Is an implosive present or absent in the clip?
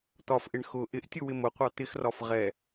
absent